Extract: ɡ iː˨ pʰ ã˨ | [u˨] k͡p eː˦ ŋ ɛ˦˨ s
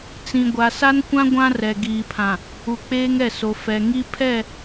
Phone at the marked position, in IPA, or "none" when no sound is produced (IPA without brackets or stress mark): u˨